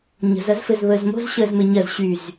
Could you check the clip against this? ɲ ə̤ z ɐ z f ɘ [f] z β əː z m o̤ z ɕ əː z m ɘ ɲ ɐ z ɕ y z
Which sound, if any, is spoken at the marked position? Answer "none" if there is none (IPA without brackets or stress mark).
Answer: none